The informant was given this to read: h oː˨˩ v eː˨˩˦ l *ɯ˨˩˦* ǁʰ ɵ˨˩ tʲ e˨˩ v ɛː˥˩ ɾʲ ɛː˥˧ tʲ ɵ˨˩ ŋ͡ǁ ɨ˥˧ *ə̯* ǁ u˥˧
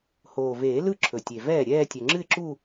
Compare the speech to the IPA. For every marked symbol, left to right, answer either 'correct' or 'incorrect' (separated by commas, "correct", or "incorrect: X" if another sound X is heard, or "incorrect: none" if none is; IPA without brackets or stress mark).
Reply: incorrect: ɯ˥˩, incorrect: ɪ̯